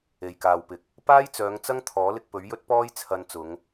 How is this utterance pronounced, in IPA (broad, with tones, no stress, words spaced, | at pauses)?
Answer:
e˨jkaː˨wpɪ˨k̚ | paː˥jt͡sœː˨˧ŋt͡sɐ˥ŋ t̪ʰɔː˨˥lɪ˧k̚pɵ˨˥ɥjɵ˥t̚ pɔː˥j t͡sʰɐ˧nt͡sʊ˨˧ŋ